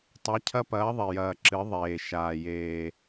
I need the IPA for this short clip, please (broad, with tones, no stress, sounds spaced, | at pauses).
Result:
tˤ ɛ˩˧ cʰ ɐ˧ p ɐː˩˧ ðˤ i˩ j ɐː˩ ǁ ɨ˩˧ ðˤ eː˩ ʃ aː˩ j eː˩